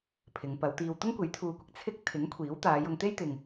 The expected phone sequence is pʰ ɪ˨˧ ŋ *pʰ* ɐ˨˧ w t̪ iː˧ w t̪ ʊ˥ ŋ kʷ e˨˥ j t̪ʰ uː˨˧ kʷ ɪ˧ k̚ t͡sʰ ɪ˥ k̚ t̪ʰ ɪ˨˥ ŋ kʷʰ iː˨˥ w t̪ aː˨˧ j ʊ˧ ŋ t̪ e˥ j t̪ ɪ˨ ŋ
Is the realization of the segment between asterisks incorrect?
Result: yes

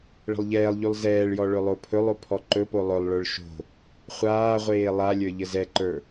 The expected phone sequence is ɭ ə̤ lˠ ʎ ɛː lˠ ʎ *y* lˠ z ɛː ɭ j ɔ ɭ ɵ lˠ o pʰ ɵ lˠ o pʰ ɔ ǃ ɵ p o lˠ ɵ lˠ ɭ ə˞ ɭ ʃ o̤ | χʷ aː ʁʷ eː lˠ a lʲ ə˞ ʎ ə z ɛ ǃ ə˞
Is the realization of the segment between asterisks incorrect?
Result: no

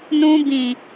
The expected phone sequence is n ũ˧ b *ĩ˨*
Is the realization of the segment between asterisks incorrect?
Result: no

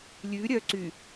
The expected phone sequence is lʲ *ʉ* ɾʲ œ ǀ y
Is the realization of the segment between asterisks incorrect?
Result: no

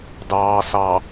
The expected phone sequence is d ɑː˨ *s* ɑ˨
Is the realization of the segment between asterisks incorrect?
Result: no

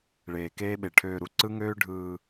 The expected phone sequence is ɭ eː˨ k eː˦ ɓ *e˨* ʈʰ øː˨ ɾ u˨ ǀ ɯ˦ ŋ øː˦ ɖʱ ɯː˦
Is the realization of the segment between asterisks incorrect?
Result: no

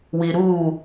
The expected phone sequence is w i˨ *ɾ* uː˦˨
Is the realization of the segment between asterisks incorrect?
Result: no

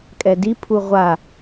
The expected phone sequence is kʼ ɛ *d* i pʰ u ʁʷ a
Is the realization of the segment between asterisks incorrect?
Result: no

